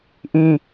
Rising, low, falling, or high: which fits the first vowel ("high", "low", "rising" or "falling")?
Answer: low